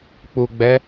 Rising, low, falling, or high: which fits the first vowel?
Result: low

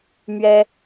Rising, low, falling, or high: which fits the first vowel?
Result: high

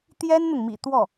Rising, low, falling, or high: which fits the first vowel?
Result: high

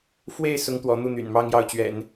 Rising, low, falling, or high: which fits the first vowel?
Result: falling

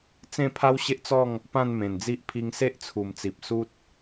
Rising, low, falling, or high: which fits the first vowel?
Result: falling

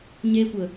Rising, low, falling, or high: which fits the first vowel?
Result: high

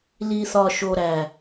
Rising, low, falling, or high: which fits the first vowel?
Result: low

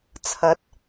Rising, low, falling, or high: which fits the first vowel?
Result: rising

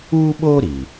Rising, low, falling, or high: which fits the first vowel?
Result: high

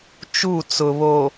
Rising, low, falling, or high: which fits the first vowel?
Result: falling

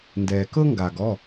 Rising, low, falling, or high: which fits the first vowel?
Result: low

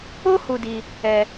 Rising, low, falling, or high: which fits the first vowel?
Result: high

